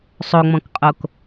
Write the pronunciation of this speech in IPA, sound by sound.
sˤ o ŋ͡m ɔ̃ k qʼ o k

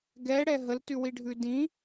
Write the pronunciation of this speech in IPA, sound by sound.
ɡ ɛ ɽ ɛ ɦ ə l t ʉ w i ɖʱ ʉ d ĩ

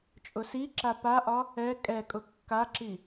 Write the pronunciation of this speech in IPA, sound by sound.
t͡ʃʼ ʊ s i ǁ a p a ʔ ɒ | ɛ kʼ ɛ kʼ ʊ kː a ǁ i

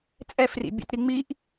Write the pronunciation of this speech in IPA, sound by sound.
t͡sʼ ɛ f r ḭ bʲ ɛ̰ t ɾ i ŋ͡m i ʔ

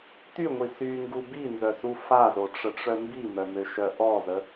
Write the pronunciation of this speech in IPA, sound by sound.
t y ŋʷ i s y ŋ ɡ u b i n z œ s u f a z o ʈ͡ʂ ə ʈ͡ʂ œ m b i m œ m ø ʃ œ ʔ ɔ z ə

